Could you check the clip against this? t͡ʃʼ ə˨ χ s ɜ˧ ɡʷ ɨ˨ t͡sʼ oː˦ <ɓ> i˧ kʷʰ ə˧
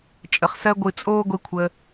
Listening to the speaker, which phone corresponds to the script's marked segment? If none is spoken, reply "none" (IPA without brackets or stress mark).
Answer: ɡʷ